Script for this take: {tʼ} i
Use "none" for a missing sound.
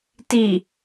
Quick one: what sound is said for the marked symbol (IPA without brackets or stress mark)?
t